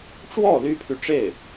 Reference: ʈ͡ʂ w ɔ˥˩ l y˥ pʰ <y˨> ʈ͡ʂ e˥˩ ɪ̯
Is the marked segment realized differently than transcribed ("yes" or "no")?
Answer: no